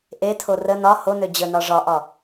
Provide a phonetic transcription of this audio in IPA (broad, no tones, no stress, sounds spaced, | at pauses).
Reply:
ʔ e tʰ o r ə n ɒ h o n ø d͡ʑ ə n ɒ ʐ ɒ ʔ ɒ